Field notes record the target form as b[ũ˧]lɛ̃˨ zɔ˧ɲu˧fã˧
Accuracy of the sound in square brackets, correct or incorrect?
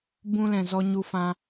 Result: correct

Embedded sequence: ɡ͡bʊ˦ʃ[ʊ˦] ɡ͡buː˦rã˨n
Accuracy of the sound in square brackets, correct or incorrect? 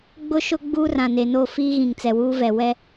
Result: correct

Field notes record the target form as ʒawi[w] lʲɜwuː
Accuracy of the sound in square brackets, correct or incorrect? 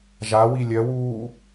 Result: incorrect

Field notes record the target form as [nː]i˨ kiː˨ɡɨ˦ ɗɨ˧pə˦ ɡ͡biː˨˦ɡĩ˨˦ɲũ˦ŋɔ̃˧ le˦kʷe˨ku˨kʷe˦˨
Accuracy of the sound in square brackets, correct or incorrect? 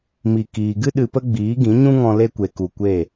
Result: incorrect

